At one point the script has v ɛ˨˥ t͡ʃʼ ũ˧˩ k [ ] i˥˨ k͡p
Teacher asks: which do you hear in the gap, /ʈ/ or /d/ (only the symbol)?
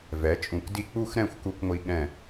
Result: d